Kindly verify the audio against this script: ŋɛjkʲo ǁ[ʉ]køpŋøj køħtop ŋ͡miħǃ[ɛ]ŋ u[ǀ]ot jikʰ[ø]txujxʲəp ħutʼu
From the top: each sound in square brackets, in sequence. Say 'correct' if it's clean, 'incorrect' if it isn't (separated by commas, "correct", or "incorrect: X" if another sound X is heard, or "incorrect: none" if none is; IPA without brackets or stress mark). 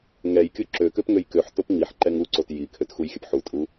incorrect: ø, correct, correct, correct